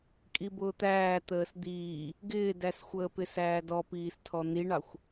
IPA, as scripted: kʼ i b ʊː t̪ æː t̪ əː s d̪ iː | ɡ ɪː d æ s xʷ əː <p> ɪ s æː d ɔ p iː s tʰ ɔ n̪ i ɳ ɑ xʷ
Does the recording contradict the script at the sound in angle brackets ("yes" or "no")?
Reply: no